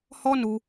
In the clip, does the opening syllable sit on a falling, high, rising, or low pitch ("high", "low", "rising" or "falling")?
high